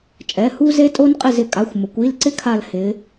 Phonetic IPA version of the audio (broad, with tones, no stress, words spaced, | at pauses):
t͡ʃʼɛ˩˧˩hu˦ ze˦tʼo˦nqʼɪ˦˨z ɪ˩ kʼa˩˧˩xʷmʊ˩˧kʷ i˩˧˩lǀɪ˦ kʰa˦˨l hɪ˩˧